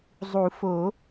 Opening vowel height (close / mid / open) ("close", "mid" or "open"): close